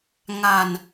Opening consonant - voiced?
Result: yes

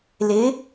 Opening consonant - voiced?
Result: yes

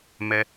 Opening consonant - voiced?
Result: yes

